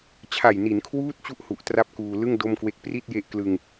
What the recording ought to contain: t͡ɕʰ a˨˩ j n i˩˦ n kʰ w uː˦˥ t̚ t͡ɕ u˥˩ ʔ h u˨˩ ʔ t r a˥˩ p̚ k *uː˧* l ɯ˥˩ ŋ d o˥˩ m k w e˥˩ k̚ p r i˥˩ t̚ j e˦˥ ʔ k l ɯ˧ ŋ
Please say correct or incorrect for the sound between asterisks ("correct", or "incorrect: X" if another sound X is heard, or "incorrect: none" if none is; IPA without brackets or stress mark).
correct